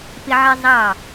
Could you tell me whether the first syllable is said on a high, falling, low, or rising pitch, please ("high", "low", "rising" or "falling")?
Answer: high